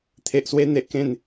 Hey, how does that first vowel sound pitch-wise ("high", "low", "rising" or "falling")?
low